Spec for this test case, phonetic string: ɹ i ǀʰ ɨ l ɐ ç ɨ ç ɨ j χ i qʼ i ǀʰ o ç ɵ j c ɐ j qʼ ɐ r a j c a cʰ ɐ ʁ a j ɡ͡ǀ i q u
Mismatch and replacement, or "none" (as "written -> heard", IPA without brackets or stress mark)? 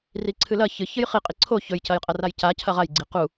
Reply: ɹ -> r